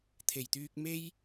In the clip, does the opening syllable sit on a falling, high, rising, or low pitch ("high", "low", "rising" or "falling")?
low